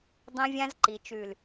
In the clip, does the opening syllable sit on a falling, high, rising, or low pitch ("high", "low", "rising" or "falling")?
high